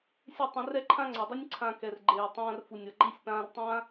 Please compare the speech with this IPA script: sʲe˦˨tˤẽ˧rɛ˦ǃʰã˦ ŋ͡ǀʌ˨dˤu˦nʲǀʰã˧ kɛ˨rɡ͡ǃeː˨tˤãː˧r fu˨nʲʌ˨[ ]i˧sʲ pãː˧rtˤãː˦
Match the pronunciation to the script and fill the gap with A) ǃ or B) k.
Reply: A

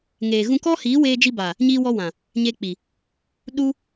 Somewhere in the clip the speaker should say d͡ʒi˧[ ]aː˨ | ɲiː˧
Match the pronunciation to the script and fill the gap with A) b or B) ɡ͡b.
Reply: A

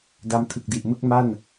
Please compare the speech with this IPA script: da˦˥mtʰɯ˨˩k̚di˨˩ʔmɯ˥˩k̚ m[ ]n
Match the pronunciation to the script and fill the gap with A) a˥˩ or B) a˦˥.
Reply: A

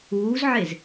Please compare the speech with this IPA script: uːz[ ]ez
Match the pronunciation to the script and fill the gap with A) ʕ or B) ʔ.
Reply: A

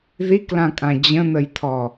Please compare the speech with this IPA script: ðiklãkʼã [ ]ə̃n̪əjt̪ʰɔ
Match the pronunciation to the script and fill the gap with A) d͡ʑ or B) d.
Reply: A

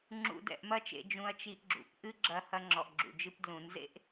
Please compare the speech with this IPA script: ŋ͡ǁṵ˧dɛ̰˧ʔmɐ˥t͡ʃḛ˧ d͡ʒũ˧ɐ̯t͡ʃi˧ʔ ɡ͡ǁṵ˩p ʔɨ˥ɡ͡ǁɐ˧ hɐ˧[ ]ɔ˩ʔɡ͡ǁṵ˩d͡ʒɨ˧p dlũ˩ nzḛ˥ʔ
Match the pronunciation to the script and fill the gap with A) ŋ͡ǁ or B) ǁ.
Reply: A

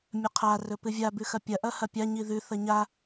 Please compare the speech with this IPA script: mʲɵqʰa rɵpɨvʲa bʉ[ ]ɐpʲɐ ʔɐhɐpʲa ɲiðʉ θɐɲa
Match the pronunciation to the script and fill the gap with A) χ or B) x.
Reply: B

